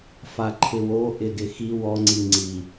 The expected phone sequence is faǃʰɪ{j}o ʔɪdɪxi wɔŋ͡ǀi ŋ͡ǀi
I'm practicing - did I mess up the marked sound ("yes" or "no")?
yes